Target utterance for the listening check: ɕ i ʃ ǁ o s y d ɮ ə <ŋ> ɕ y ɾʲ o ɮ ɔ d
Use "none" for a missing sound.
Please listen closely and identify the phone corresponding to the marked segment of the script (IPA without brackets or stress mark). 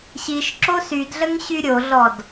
ŋ